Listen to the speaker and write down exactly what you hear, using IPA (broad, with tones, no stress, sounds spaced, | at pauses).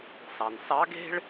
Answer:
s ɑ˩ n s ɑ˧˥ ɡ e̤˥ ɭ